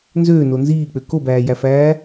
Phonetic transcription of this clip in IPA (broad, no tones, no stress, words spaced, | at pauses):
nzøːno nziːk͡pø kobæːjæfæː